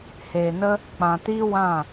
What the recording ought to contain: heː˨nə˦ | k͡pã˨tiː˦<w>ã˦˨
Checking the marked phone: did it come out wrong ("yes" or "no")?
no